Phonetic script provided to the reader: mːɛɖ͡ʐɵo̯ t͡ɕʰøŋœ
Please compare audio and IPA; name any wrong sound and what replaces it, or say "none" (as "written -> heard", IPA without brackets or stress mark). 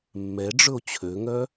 none